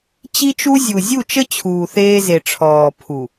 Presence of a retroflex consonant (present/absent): present